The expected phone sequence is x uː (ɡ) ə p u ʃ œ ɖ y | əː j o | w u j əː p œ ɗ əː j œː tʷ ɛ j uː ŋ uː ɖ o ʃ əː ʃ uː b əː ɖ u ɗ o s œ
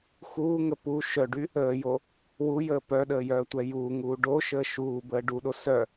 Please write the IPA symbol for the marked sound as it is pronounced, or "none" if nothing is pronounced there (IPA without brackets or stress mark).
ŋ